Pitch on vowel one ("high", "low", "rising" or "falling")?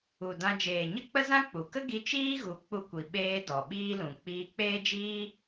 low